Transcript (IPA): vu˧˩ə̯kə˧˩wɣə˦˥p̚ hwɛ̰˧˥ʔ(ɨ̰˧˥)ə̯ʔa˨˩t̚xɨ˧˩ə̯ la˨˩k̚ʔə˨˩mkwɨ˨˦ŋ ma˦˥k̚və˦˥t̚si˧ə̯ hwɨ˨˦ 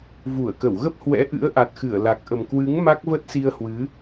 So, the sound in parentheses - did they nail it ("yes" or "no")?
yes